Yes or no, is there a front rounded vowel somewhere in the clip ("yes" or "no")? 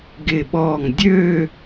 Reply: yes